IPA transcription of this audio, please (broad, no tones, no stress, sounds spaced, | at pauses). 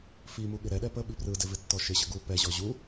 f i m u ɠ ɪ ɾ ɛ ɗ ɛ p ə ɓ i p r ɯ d ɪ v ɪ tː ɔ ʃ ɪ ɕ ə ɡ u p ɛ ʑ ɔ ʑ u